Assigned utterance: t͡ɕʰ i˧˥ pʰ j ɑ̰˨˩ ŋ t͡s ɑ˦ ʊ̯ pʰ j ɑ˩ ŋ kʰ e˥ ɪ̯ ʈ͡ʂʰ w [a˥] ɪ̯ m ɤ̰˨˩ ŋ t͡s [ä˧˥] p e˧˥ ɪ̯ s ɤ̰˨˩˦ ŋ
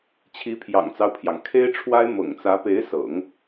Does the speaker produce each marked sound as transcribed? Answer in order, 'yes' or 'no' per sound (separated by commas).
yes, yes